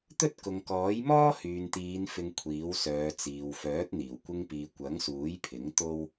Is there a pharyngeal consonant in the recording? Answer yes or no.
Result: no